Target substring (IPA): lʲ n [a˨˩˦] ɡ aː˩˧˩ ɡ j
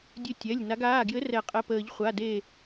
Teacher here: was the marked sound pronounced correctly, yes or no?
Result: no